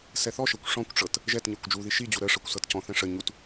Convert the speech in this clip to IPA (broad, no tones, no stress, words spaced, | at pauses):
sɛθɔʃɤkʷ ʂɔ̃kʷʈ͡ʂɤt | ʒɛtɲɤkʷ d͡ʒuði ʃid͡ʑu ɾə ʂɤkʷsɤtcɔ̃θɛ̃ ʂə ɲut